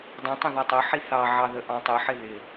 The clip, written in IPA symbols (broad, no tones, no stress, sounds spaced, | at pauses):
dˤ ĩ tˤ ə̃ ð ɒ tˤ ʊ ħ i θ ɑ ʕ ɑ ð ə ʔ ɑ̃ tˤ ɪ ħ ɪ ð ɪ